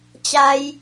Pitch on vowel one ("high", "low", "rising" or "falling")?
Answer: high